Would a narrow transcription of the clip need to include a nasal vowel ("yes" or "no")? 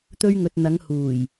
no